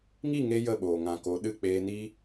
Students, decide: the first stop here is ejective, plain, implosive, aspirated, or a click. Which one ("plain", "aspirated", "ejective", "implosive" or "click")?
implosive